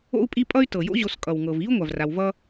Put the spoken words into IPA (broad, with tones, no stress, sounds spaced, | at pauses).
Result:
o̰˦ u̯ pʼ i˦ pʼ ʌ˥ y̯ t ɤ˩ j o̰˦ ʑ o˨ s kʼ ʌ˩ w ŋ ɤ˩ v i˥ u̯ ŋʷ a˩ v r a˨ w v ʌ˥